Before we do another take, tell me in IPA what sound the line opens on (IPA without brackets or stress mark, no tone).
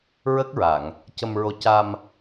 ɹ